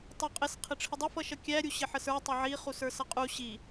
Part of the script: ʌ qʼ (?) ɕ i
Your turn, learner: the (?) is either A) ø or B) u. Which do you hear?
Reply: B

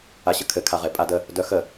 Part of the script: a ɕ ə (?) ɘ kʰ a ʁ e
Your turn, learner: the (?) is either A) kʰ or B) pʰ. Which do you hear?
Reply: A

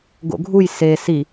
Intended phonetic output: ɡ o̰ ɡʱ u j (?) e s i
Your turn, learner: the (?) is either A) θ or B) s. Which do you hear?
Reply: B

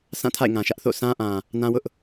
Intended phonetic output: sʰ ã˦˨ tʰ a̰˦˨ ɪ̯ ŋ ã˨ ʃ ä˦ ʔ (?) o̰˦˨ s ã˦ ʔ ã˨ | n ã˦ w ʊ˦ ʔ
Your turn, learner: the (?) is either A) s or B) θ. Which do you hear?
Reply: B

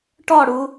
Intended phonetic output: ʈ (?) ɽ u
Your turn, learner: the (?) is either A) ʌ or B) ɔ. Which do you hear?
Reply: B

